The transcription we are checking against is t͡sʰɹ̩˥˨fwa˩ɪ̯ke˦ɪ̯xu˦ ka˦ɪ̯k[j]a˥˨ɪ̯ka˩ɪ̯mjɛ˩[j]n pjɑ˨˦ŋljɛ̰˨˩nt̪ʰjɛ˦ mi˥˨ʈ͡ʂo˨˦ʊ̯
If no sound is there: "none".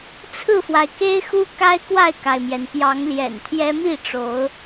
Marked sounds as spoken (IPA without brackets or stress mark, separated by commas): w, none